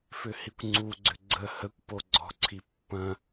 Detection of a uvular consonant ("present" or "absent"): absent